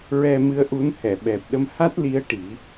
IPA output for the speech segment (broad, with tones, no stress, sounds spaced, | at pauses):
ɹ ɛ˧ m ɨ˧˥ ə̯ ʔ u˧˥ n h ɛ˨˩˨ ɓ ɛ˨˩ p̚ ɗ ə˧ m h a˦˥ t̚ l i˧˥ ə̯ ʈ i˨˩˦